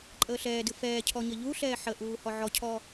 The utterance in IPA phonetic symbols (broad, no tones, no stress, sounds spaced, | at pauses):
ǃʼ əː ɬ ɛː d ɨ f ɛː cʰ ɔ ɲ ə ʎ u ɬ ɛː ħ ə ʔ uː h ɔ ʕ ɔ cʰ ɔ